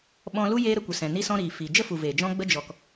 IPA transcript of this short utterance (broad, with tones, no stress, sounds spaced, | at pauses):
ɓ ɔ̃˧ l u˦ j eː˦ ɾ ə˧ kʷ ə˨ s ɛ̃˨ n i˦ s ɔ̃˦ ɾ iː˨ f i˨ d͡ʒ ə˦ f u˨ v eː˨ d͡ʒ ɔ̃˦ ɡ͡b ə˧ d͡ʒ ɔ˨ k